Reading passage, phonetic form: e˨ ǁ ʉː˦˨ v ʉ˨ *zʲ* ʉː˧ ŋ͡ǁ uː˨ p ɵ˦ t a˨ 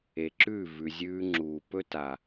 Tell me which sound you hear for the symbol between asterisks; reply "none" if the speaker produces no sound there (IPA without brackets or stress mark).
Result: zʲ